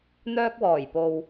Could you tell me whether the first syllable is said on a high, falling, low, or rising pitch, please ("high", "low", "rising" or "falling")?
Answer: high